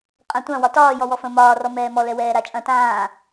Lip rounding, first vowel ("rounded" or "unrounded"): unrounded